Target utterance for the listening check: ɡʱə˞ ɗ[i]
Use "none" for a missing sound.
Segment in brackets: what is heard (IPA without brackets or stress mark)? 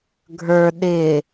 ɪ